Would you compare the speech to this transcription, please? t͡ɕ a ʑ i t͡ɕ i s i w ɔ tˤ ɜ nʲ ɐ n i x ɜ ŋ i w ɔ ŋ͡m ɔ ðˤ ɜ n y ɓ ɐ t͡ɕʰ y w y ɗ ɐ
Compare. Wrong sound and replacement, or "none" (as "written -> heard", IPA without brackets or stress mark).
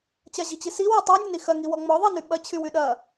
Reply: none